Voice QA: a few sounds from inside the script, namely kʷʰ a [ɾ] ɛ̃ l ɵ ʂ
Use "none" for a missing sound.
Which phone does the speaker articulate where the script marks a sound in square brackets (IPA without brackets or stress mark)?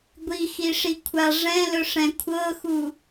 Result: ʐ